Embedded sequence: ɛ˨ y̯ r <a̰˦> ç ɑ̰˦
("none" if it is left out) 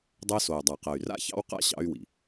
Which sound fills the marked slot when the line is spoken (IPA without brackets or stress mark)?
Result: a̰˦